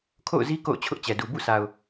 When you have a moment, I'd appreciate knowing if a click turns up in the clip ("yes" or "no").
no